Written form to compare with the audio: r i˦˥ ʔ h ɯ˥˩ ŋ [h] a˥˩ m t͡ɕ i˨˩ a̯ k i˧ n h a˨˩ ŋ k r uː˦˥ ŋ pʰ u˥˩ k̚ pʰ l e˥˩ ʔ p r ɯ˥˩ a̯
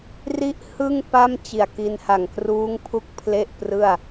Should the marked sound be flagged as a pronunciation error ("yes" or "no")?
yes